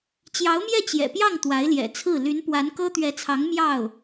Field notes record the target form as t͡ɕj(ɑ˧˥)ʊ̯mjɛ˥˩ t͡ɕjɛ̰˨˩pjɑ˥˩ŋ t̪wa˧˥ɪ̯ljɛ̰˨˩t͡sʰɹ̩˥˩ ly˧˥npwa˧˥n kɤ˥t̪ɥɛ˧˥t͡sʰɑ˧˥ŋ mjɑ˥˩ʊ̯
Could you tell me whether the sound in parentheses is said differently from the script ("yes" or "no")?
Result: no